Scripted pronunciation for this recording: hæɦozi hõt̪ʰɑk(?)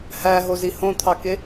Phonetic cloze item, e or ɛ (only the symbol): e